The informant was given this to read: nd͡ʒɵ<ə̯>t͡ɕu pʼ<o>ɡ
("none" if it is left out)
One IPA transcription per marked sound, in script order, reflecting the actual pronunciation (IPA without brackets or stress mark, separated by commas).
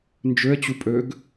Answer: ə̯, ɵ